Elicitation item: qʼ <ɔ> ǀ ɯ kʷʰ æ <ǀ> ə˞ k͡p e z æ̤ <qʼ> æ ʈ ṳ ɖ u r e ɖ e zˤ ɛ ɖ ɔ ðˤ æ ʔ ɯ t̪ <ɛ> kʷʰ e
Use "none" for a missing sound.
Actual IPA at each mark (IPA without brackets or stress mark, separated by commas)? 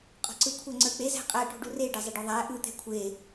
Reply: ɔ̤, ŋ͡ǀ, qʼ, ɛ̤